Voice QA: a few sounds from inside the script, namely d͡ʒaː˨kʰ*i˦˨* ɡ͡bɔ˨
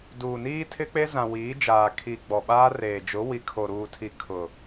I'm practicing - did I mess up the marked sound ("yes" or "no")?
yes